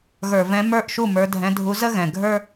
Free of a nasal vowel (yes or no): no